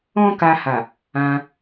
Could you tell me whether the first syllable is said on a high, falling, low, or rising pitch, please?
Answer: high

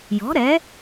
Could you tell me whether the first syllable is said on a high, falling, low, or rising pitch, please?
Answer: rising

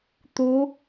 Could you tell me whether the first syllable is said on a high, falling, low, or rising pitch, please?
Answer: rising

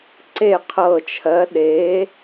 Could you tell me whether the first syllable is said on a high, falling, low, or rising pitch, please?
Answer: falling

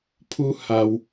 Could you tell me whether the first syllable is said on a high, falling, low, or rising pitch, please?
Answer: high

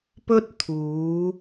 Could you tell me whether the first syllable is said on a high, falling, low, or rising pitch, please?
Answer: high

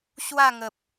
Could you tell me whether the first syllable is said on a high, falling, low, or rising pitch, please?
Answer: falling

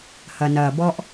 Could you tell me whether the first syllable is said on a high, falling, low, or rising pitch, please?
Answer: low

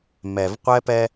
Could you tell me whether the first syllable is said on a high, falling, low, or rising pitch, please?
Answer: low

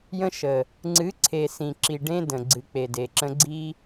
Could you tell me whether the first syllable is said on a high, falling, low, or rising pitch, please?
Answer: high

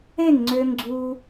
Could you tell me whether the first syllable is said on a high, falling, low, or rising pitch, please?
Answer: falling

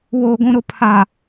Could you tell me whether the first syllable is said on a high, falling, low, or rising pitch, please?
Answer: low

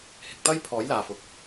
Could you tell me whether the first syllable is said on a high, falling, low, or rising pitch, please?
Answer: low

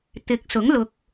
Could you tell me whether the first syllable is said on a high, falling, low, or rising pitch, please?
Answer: rising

